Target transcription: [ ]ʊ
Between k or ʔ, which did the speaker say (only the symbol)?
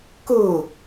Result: k